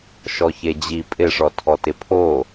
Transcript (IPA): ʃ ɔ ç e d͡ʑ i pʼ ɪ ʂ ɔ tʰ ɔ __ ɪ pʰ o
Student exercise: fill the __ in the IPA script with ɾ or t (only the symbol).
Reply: t